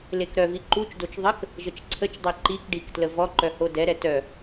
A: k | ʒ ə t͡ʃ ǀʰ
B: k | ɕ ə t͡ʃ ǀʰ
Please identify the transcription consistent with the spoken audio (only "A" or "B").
A